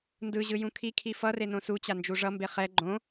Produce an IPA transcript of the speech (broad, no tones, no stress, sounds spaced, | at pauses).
n d ɯ ʑ ɯ j ũ kʰ i kʰ i f ʌ r e n õ s u t͡ɕ a n d͡ʒ u ʐ ʌ m b e χ ɛ ɡ͡ǃ õ